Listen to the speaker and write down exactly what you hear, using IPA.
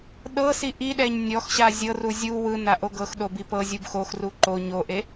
ɗ ɤ s i ʔ i ɗ ɛ ɲ nʲ ɔ x ɕ a zʲ ɤ r u zʲ u w ɯ n a ʔ o ɡ ɤ x ɗ o b i p ɤ zʲ u b x o x r u ǃ o ɲ o ʔ e

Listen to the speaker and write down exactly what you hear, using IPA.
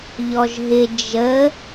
ʎ ɔ ʒ ɦ ɪ d͡ʒ ə

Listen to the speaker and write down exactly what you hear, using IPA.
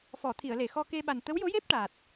f ɔ˨˩˨ t̪ʰ i˨˩˨ ə̯ l e˨˩˨ x ɔ˧ k e˧ ɓ a˨˩ n t̪ ə˧˥ w j o˧˥ j e˦˥ p̚ ʈ a˨˩ t̚

